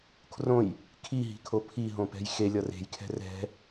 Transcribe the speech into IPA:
kʰ r õ j | kʰ i ɦ i̤ kʰ o pʰ i ɦ õ p ɛ̤ j x e lʲ ʌ r e̤ j kʰ ɛ̤ r ɛ̤

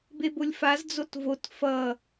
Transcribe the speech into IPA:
b e b o lʲ f a z d͡z o t v o t f ʌ

